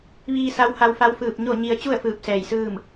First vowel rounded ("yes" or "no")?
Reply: no